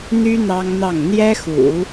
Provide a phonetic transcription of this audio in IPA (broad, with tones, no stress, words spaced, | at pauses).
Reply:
n̪y˥ n̪ɑ˥ŋn̪ɑ˥˩ŋ n̪jɛ˥xṵ˨˩˦